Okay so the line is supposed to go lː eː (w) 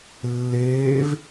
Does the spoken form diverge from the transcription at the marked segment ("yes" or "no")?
yes